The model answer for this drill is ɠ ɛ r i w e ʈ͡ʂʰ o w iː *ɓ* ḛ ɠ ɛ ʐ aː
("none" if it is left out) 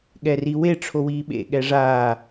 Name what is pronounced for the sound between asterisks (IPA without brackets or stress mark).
ɓ